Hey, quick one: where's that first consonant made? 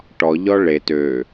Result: retroflex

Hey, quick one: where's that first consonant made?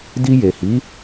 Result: tongue tip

